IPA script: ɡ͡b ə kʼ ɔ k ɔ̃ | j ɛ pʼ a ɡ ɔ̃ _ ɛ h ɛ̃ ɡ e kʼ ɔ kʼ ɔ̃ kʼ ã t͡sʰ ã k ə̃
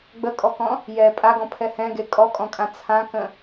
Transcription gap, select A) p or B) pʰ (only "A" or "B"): B